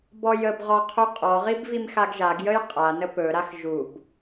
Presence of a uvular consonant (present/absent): present